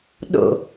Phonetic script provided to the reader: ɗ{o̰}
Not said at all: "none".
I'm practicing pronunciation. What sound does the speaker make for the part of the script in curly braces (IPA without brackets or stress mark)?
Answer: o̰